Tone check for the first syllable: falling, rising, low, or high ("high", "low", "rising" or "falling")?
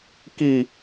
falling